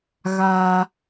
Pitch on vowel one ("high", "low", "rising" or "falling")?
high